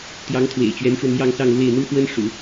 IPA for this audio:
t̪ j ɑ˧˥ ŋ t̪ʰ w ḛ˨˩ ɪ̯ t͡ɕ ɥ ɛ˧˥ n ʈ͡ʂ w ə˧ n m j ɑ˥˧ ŋ s ɑ˥˧ ŋ l w e˥˩ ɪ̯ n̪ u˥ x w ə˥ n ʂ ṵ˨˩˦

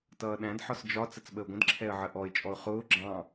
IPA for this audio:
t ʌː ɗ æ̃ d ħ ɒ s d͡ʒ ɒ t͡s ə t͡s ɓ ə ʊ̯ ɡʷ ə̃ d ǁʰ ɛ ə̯ ʕ ə ʔ ɔ ɪ̯ t͡ʃʼ ɔ ʊ̯ χ ʊː ɡ͡ǁ ɑ̃

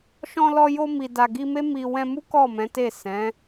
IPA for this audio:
ʃ ɔ̃˧ l ɔ˧ j o˧ m i˨ d a˨ ɡ i˧ m e˦ m i˧ w ɛ̃˧ m u˦ k ɔ˦˨ m ɛ̃˨˦ t e˦˨ s ɛ̃˨˦

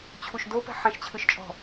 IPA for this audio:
t͡ɕʰ u ʃ d o p ɛ̤ ħ ɛ̃ ʃ t͡ɕʰ ɯ ʃ t͡ʃʼ ɔ̤

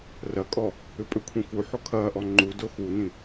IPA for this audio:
r ɐ kʼ ɔ | ʏ pʼ ʏ kʷʰ ĩ f u ħ o kʰ ɐː ʔ ɔ ŋ͡ǃ u d o x u n ĩ

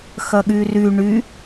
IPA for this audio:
x ɐ ɠ y r y ɳ y

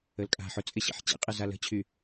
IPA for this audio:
ə l kʼ a̤ ħ ʊ t͡sʼ ɪ ɕ ḭ ħ t͡ɕ ḭ qʼ ɪ z a l ə̤ t͡ɕʰ y

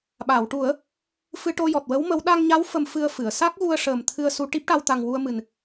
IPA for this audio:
ɓ a˨˩˨ w ʈ u˨˩˦ ə̯ | f ɨ˧ ʈ o˧ j ɔ˨˩ t̚ w ə˧˥ w m ə˧˥ w ɗ a˧ ŋ ɲ a˧˥ w f ə˧ m f ɨ˧ ə̯ f ɨ˨˩˨ ə̯ s a˦˥ k̚ ɣ u˧ ə̯ ʂ əː˨˩ m t̪ʰ ɨ˧ ə̯ s u˧ ʈ i˦˥ p̚ ʈ a˧ w t̪ a˨˩ ŋ w u˧ ə̯ m ɨ˨˩ n

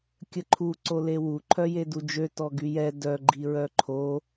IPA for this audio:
kʲ ə ǃʰ u ǀ o l e w u ǃʰ œ j e d u d͡ʒ ø t ɔ ɡ y j ɛ d œ ɡ͡ǃ i ɹ œ ǃʰ o

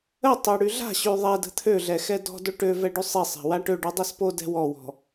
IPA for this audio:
ə tˤ ø ɽ y ɮ a̤ ɕ y ðˤ ɛ d ə̤ t̪ʰ ø ɮ ɛ x ɛ d ɔ̤ d o ʈ ø v ɛ ɖ y sˤ i sˤ ɛ̤ w a ʈ ø ɖ y dˤ i s p o d ɛ̤ w ɔ w ɔ̤

